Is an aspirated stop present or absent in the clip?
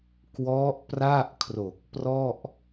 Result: present